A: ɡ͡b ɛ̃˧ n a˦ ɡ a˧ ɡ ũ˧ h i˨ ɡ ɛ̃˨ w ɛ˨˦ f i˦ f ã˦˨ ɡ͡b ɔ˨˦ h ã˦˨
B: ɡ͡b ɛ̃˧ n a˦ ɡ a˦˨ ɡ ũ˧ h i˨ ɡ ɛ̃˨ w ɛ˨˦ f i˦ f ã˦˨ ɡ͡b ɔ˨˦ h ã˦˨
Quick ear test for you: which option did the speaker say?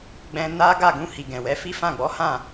B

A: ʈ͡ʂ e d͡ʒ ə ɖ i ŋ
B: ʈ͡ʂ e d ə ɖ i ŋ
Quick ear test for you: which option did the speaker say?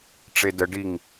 B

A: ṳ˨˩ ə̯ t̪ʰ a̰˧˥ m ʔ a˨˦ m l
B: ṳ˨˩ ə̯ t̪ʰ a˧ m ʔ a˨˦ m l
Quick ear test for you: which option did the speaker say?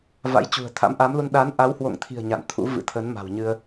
A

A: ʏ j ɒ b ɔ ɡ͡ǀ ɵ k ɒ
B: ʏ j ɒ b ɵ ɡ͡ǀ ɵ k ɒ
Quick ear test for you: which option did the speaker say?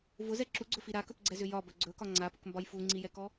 B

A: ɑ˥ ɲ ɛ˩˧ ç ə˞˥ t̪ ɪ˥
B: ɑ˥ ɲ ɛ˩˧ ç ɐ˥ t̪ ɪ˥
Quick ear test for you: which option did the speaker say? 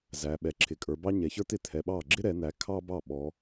A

